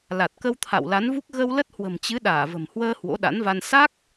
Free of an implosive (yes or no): no